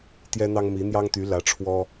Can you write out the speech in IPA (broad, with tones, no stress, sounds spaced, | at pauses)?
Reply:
t̪ j ɛ˥ n̪ ɑ˥ ŋ m i˧˥ n̪ j ɑ˥ ŋ t̪ y˧˥ l ä˧˥ ʈ͡ʂʰ w ɔ˥